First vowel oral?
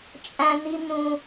no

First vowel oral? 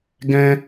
no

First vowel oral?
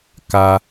yes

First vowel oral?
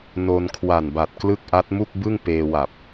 yes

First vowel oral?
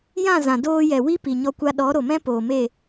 no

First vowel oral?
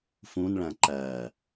no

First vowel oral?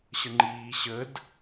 yes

